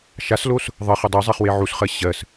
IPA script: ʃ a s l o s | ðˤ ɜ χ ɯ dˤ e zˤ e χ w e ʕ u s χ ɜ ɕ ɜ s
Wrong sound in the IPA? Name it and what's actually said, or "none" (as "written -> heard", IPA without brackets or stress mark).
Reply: ɯ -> u